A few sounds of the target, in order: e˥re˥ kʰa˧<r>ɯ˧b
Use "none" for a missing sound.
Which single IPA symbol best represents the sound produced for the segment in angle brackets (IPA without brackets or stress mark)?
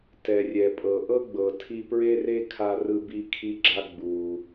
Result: r